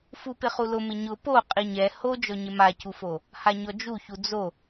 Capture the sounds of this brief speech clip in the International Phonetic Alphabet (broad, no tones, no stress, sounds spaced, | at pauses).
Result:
f u p ɪ χ u l ʊ m ɪ ɲ ʊ p o qʼ i ɲ ɛ h o d͡ʒ ɔ ɲ ɪ m a c u f o | h a ɲ ɔ d͡ʒ u ç u d͡z o